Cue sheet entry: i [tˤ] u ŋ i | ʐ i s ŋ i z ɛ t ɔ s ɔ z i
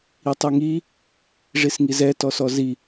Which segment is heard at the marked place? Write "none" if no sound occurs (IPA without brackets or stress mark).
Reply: tˤ